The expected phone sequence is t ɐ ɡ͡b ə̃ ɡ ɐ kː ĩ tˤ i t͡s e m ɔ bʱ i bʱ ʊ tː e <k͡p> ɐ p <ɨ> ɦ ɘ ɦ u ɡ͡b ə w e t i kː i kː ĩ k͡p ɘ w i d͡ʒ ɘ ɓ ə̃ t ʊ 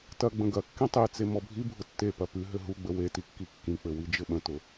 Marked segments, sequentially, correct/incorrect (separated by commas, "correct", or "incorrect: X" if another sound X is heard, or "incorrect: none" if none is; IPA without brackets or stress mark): incorrect: p, correct